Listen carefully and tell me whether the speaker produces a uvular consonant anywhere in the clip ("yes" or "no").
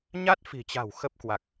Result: no